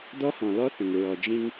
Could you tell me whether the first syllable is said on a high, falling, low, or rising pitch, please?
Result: high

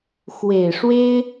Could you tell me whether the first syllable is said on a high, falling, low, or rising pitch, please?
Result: low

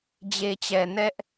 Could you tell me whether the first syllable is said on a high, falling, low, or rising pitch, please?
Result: low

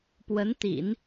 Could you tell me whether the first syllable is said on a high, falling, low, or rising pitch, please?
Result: rising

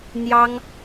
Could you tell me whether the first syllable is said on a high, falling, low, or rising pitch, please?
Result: high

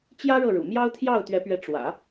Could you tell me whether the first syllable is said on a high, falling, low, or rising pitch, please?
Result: high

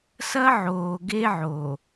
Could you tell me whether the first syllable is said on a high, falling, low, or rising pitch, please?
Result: high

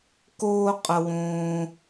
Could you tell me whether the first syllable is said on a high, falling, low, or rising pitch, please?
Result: high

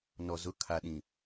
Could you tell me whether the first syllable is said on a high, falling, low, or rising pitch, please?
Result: low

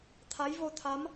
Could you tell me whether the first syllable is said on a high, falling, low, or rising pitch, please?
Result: rising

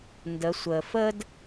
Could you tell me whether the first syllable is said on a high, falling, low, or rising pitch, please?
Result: rising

